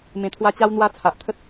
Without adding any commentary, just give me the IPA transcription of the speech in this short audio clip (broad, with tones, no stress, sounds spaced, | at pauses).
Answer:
m ẽ˧ t̪ʰ w a˦ t͡ɕ a˦ w n̪ w a˦ t͡sʰ a˨ ʔ t̪ʰ ə˦ t̚